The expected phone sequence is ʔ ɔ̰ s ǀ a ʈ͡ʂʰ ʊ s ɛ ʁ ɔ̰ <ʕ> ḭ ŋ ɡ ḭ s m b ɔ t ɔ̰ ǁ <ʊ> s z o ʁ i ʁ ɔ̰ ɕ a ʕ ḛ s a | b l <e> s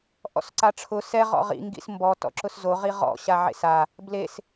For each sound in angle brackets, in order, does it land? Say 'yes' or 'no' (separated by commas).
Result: no, yes, yes